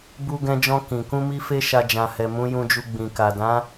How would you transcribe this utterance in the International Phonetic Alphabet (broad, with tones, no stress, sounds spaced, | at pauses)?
b u˧ ɡ ɛ̃˧ d͡ʒ ɔ̃˧ k ĩ˨ k ũ˧ m i˧ f e˦ ʃ a˧ d͡ʒ ã˨ h ɛ˨ m ũ˨˦ j ũ˧ d͡ʒ u˧ ɡ͡b ĩ˨ k a˨ d ã˨˦